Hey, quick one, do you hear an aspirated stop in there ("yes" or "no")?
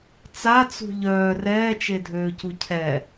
yes